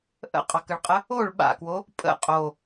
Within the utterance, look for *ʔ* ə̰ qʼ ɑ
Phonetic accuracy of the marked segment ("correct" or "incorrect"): correct